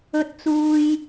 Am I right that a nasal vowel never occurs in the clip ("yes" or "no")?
yes